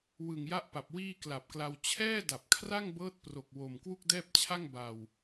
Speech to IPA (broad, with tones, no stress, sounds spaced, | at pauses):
w ɯ˨˩ ŋ j a˦˥ ʔ p a˨˩ p̚ w iː˥˩ k l a˨˩ p̚ k l a˧ w t͡ɕʰ ɛː˥˩ d a˨˩ p̚ kʰ r a˥˩ ŋ b ɤː˦˥ t̚ p r o˨˩ k̚ w o˨˩ m k w u˥˩ k̚ d ɛː˥˩ p̚ t͡ɕʰ a˥˩ ŋ b a˨˩ w